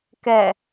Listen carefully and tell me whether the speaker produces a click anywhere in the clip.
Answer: no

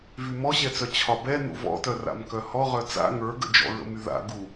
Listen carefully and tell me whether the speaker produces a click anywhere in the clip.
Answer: no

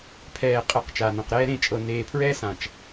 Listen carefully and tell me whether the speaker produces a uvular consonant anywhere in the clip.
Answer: yes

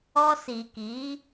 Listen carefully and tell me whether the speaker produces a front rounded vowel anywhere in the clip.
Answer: no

